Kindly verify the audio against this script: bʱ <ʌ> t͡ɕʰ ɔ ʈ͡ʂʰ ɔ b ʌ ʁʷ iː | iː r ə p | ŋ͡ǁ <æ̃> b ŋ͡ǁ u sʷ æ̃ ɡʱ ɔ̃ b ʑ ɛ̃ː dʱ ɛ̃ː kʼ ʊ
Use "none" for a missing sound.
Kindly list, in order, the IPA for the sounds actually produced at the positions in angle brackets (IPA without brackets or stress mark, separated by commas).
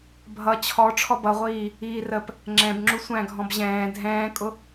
ʌ, ɛ̃